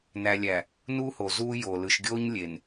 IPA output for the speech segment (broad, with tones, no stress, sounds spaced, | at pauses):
n æ˨ lʲ æ˨ | n u˦ h o˨ z uː˦ j o˨ l ɯ˨ ʃ ɡʲ oː˦ ɲ lʲ e˨ n